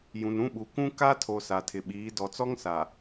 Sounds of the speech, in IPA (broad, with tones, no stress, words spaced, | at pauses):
jũ˨nũ˦ɓu˨ kũ˦ ka˦tʰo˨ sa˨tʰɪ˨ɓiː˨˦ dɔ˨t͡sɔ˦ŋsa˨